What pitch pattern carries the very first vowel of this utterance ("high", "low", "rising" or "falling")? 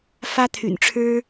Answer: high